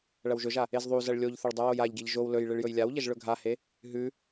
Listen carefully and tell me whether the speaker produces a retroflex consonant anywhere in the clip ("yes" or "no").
yes